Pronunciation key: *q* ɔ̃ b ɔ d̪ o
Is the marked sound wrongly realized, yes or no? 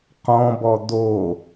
no